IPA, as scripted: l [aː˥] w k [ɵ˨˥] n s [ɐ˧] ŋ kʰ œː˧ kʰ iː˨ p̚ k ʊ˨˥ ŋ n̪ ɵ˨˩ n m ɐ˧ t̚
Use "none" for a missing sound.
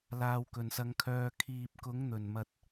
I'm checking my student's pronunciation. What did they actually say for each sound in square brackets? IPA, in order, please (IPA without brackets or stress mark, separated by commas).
aː˧, ɵ˨, ɐ˧